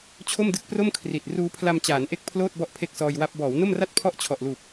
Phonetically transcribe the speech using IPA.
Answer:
t͡ɕʰ o˥˩ m d ɯ˦˥ k̚ p r o˥˩ m kʰ r i˨˩ t̚ r uː˦˥ pʰ l a˧ m t͡ɕ aː˩˦ n ʔ e˦˥ k̚ pʰ l oː˥˩ t̚ b ɔ˦˥ ʔ pʰ e˥˩ k̚ s ɔː˧ j w a˦˥ p̚ b ɔː˩˦ w n o˥˩ m r a˥˩ t̚ pʰ ɔ˥˩ ʔ t͡ɕʰ ɔ˨˩ ʔ l uː˨˩ p̚

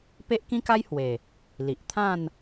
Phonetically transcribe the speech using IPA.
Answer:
p e˦ ʔ k ĩ˦ k a˦ j h w e˨˩ | l i˨ ʔ t̪ʰ ã˥˧ n

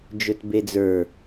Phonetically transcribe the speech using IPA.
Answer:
d͡ʒ ɵ t b e d͡z ə˞

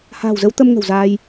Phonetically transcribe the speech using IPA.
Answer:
h a̤ː˨˩ w z ə˨˦ w t̪ ə˧ m ŋ ə̤˨˩ w z aː˧ j

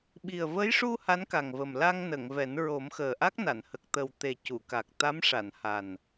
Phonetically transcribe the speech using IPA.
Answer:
ɓ i˨˩ ə̯ v ə˧˥ j ʂ u˧ h a˧˥ n k a˨˩ ŋ v ə˨˩ m l a˧ ŋ n ə˨˩˨ ŋ v ɛ˨˩˦ n ɹ o˨˩˦ m x əː˨˩ ʔ a˦˥ k̚ n a˨˩˨ n h ə˨˩ k̚ t̪ ə˨˩ w t̪ e˨˩ c u˨˩˨ k a˨˩ k̚ t̪ a˧˥ m ʂ a˨˩˨ n h a˨˩ n

